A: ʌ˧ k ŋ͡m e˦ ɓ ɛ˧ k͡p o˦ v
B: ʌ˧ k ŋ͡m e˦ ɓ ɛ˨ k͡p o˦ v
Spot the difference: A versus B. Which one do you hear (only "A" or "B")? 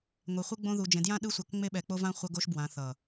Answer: A